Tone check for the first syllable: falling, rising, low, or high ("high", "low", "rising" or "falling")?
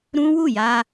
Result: high